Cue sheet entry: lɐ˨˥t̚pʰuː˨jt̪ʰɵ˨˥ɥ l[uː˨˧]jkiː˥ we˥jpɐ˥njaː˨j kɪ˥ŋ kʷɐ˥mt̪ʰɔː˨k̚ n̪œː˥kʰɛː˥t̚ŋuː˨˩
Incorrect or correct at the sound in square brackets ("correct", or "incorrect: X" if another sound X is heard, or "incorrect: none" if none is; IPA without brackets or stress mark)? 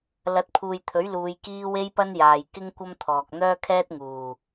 correct